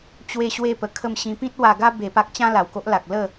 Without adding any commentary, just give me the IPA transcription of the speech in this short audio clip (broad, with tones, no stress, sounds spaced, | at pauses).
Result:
t͡ɕ w e˦ ɕ w e˦ p ə˧ kʰ ə˥˧ m ɕ ĩ˧ p ĩ˦ t̚ w a˧ ɡ a˦ b e˧ p a˦ k̚ t͡ɕ ã˦ l a˨˩ w k o˦ ʔ l a˨ k̚ l ə˥˧